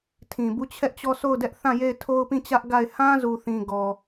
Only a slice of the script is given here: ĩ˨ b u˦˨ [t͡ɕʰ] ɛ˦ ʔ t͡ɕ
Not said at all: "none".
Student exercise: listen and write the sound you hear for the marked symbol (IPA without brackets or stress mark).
t͡ɕʰ